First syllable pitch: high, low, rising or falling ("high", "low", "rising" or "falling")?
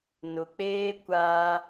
low